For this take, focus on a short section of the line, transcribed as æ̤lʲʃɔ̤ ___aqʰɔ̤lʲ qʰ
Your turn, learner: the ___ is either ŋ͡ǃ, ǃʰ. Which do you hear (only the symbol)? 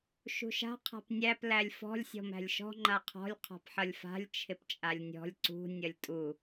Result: ŋ͡ǃ